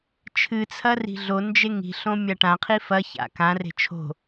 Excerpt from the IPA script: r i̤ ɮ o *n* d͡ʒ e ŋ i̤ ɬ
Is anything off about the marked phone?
no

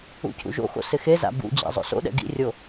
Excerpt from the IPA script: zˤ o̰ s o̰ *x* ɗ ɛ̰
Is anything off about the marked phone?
yes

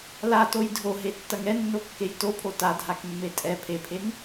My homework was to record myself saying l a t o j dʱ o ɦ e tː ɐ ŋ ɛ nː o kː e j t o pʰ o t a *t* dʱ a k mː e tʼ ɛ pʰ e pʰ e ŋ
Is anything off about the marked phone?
yes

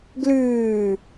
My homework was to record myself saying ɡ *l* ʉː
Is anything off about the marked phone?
no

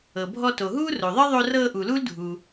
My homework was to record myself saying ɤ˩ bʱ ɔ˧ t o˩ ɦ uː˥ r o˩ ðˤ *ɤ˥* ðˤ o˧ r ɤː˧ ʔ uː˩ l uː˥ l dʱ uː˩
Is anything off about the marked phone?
no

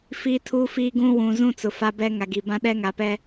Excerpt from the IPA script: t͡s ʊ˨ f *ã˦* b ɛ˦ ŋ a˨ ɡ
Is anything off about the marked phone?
yes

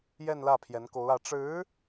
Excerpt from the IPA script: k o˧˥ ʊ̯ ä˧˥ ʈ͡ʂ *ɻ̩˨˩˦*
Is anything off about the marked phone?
yes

